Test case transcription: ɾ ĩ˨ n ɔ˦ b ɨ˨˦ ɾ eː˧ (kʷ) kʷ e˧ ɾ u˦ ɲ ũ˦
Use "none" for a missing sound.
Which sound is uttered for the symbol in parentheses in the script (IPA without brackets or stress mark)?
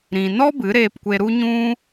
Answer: p